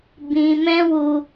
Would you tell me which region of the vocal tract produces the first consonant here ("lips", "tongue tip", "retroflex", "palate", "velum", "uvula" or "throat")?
lips